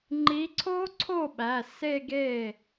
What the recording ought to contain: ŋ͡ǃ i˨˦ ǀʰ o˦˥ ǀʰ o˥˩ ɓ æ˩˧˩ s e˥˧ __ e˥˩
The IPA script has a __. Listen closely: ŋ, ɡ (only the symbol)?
ɡ